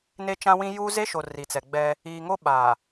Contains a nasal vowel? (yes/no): yes